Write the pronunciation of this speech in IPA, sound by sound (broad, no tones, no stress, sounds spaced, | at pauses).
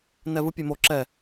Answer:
n ɛ v ɯ pʲ e m o ǁ ɛ